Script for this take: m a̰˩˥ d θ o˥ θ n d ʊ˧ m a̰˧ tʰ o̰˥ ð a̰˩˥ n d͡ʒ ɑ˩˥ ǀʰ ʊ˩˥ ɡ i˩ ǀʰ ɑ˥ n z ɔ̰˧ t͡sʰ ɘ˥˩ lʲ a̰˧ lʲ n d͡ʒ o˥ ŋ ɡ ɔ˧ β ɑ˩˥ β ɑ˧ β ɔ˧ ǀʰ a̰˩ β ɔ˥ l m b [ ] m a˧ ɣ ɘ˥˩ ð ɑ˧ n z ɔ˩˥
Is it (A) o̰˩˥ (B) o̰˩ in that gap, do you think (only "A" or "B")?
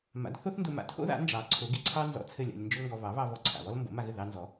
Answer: A